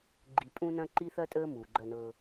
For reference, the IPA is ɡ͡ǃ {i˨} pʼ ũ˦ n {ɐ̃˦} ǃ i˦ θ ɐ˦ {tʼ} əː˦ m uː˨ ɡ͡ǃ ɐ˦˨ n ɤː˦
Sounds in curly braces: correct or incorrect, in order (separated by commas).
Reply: correct, correct, correct